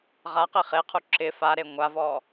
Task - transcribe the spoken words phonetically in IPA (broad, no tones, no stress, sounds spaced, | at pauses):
ʁ a q i χ e qʰ u ǁ ɪ f a ɾ e ŋʷ a v ɔ